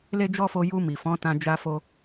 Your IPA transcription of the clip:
l e˦ d͡ʒ ɔ˦ f o˧ j u˧ m i˨ f ɔ̃˨˦ t ã˧ d͡ʒ a˧ f o˧

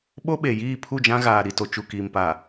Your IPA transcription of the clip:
ɓ o˦ ɓ e˨ j iː˦˨ pʰ u˦˨ d͡ʒ ã˦ ɣ aː˨ ɾ i˨ t o˨ t͡ʃ u˨ k iː˨ m p a˨

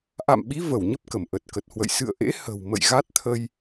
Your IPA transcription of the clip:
ʔ a̰˧˨ m ɓ i˨˦ v ə˧˩ w ɲ ə˦˥ p̚ k ə˧˩ m ʔ ə˨˩ t̚ k ə˨˩ t̚ h w ə̰˧˨ j s ɨ̰˧˨ ə̯ ʔ ḛ˧˥ h ə̤˨˩ w m ə̰˧˨ j ɣ a˦˥ t̚ t̪ʰ ə˧ j

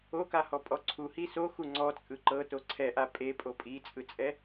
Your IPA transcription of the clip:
o k a h ɔ pʼ ɔ ǀʰ u h i s o x u ŋ͡ǀ ɔ t͡sʼ ɯ ǃ ɤ t o ǀʰ ɛ ʔ a pʼ e pʼ o pʼ i t͡sʼ ɯ t͡sʼ ɛ

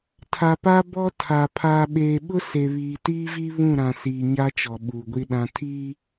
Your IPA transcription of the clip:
tʰ a˨ p a˦ b ɔ˦ tʰ a˨ pʰ aː˨ ɓ eː˨ ɓ ʊ˦ s e˨ β iː˨ t iː˦ v i˦ β ũ˦˨ ɾ ã˨ s iː˨ ɲ a˦ t͡ʃ ɔ˨ ɓ uː˨ ɡʷ i˦ ɗ ã˦ tʰ iː˦

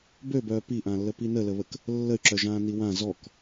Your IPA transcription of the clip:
b ø b œː p i ʔ ãː lː ə p i n əː l ə β ə k | lː ə y̯ ǁ œ ʒ ãː n i w ã z ɔ k

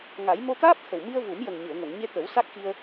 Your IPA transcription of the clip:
ŋ a˨˩˦ j m o˧ t̪ aː˦˥ p̚ t̪ʰ ə˨˩ w m i˧ ə̯ v u˨˩˦ m j ə˨˩ ŋ ɲ ɨ˨˩˨ ə̯ ŋ o˨˩˨ ŋ ɲ e˧ t̪ ə˨˩˦ w s a˦˥ k̚ x i˧ ə̯

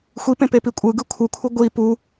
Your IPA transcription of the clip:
xʷ i p ẽ p e p i kʷʼ ɯ ɡ ɯ kʷʰ ɯ kʷʰ ɯ ɡʷ i p u

